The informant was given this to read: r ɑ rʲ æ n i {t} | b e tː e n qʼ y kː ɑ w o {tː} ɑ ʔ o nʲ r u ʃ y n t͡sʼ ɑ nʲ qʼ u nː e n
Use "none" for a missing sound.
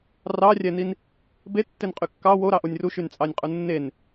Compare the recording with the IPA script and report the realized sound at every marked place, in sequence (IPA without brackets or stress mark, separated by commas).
n, ɾ